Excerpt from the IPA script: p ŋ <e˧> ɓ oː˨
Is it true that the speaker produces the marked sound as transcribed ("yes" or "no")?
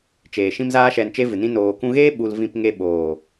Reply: yes